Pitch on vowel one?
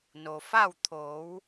low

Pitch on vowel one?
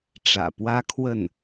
low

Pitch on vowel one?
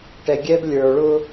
low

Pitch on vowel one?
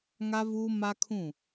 high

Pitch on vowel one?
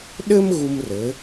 high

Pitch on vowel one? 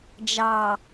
low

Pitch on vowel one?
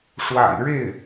low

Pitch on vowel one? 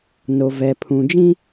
low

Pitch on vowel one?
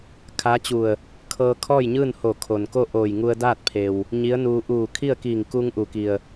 rising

